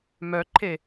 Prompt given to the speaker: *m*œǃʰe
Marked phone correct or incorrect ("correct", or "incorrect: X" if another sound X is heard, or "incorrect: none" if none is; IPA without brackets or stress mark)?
correct